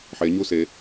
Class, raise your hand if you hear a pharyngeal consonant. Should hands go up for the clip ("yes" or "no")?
yes